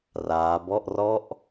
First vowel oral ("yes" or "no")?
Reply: yes